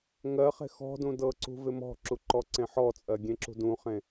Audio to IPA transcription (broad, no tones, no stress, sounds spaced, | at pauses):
ŋ ɜ χ e̤ x ɔ̤ d ũ d ɤ ǀ ṳ v ɪ m ɔ̤ ǁ u ǃ ɔ ǀ ẽ ħ ɔ t͡sʼ ɜ ɡʲ ẽ ǁ ṳ d ũ χ ẽ